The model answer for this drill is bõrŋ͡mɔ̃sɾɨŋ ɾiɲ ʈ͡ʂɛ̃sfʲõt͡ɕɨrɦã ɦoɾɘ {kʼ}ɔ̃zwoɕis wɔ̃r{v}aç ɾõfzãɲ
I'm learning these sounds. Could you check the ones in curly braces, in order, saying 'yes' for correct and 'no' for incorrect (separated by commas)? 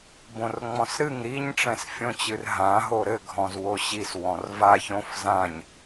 no, yes